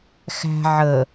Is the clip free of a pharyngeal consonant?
no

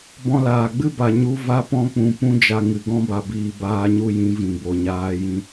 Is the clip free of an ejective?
yes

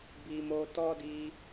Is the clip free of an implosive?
yes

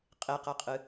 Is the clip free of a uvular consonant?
no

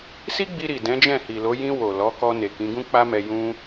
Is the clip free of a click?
yes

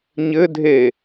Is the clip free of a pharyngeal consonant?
yes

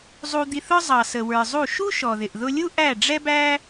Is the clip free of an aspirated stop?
yes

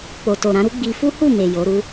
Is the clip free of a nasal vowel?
no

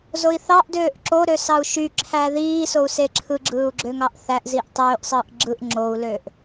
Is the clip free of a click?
no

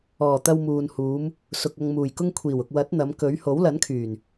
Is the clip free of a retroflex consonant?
yes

